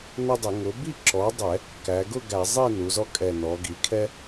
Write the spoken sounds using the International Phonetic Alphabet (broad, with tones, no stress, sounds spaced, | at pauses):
n ʌ˦ dˤ ɪ˧˩˧ ŋ ʊ˩˥ b i˥˨ ǁ ɔ˩˥ dˤ ɛ˧˩˧ | k æ˩˧ ɡ ʊ˥˨ ɡ æ˧˩˧ zˤ i˥˨ n u˩˧ z ɔ˦ kʼ ɛ˨˩ n ɔ˩˧ ɡ i˩˧ kʰ ɛ˦